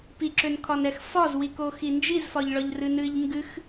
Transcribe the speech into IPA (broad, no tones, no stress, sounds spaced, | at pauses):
p i ǁ ø n kʰ ɒ n ɛ x f ɒ z w i k o x i n d͡ʒ i z f ɒ ʎ ɭ ɒ ʎ r ɨ n ɨ ʎ ŋ ɡ ɨ x